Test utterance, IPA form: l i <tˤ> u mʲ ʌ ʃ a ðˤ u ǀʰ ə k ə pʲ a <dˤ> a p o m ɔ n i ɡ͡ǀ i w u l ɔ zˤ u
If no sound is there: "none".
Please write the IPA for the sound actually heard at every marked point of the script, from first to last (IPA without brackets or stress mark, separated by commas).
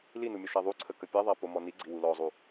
n, ðˤ